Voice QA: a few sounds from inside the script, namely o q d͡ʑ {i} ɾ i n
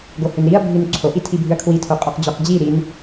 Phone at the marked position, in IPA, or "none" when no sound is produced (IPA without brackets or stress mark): i